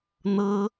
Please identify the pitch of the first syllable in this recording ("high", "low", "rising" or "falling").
high